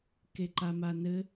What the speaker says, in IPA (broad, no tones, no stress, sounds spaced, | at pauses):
k e ǃ a m a n ɘ